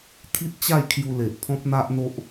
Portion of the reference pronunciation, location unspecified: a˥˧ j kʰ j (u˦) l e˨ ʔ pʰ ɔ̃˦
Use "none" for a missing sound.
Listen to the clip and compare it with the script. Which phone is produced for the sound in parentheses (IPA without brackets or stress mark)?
u˧